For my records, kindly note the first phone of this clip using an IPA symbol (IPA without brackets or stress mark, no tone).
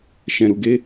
ʃ